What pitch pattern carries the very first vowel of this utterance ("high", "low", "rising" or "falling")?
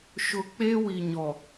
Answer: low